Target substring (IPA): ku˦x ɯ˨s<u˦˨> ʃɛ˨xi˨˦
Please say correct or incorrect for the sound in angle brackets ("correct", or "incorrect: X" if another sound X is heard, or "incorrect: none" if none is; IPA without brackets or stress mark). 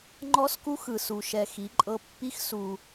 incorrect: u˨